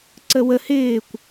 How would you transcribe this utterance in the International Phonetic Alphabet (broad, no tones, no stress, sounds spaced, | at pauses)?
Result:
ǀ ə w ə h ɪː kʷ